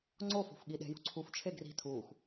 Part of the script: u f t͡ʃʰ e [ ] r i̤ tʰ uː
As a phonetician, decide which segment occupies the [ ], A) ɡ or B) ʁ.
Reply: A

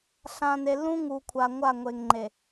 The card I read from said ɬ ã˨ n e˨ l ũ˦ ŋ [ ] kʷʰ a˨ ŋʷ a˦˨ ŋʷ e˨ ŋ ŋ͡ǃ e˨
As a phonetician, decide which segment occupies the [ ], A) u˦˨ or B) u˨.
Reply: B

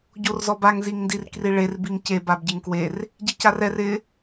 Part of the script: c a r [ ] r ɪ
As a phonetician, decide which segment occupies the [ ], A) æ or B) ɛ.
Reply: B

